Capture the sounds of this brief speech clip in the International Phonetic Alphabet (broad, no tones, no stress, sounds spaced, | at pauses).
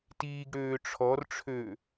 t iː ɡ ɽ øː ʈ͡ʂʰ ɔ r ʈ͡ʂʰ øː